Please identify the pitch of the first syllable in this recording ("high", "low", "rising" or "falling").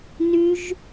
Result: high